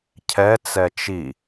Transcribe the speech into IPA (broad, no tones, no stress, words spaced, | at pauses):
cʰɛ t͡sɛt͡ʃi